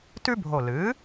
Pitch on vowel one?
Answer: high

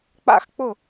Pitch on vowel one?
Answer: falling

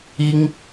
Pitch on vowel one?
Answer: high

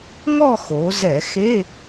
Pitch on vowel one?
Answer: falling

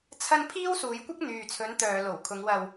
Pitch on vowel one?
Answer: high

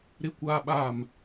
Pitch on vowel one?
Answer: high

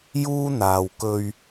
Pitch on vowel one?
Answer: high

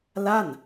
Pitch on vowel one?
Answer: falling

